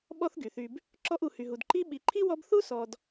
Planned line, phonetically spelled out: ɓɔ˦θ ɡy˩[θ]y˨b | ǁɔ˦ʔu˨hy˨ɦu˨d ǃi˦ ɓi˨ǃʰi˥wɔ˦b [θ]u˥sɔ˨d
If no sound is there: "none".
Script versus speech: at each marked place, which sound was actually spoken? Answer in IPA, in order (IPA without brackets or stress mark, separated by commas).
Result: θ, θ